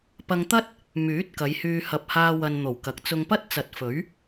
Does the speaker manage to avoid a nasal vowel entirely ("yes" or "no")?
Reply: yes